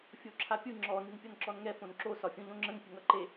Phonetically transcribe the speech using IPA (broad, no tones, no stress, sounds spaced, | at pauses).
fʲ o ǁʰ a pʲ ɯ ŋ͡ǁ ɔ n ɨ n pʲ ʌ n ǁ ɔ n ŋ ɛ f õ n ǁ o s ɒ fʲ õ ʎ õ ŋ͡ǁ ə̃ ŋ pʲ ə ŋ ʌ ǃ e